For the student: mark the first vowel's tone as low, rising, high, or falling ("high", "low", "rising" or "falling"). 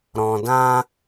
low